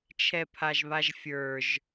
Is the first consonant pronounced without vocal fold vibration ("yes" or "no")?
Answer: yes